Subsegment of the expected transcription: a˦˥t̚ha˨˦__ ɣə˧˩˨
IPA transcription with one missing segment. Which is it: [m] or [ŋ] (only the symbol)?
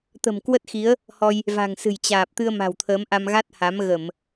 m